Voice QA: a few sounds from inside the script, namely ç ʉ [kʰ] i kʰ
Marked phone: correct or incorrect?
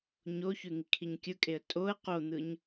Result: incorrect